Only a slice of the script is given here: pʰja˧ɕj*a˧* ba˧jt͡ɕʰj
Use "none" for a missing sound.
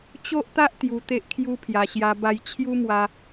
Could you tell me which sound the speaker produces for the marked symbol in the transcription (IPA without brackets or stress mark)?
a˦